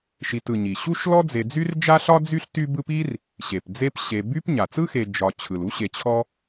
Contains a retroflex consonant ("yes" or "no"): no